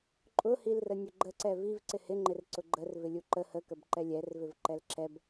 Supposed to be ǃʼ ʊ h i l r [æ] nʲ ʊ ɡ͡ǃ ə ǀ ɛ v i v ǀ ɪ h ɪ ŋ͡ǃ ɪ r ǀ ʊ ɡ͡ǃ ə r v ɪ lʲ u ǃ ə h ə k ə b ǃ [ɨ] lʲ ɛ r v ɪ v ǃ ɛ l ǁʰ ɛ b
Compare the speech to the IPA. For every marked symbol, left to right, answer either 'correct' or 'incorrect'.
incorrect, incorrect

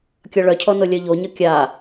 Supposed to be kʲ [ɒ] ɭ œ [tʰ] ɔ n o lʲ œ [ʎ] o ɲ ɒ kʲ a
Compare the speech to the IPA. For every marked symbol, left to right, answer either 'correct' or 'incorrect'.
correct, incorrect, correct

